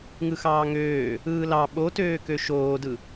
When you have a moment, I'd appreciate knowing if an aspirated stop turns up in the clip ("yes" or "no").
no